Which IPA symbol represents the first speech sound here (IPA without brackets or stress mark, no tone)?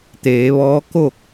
t̪